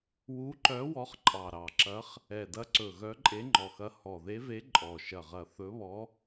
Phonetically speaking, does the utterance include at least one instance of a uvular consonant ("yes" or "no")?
yes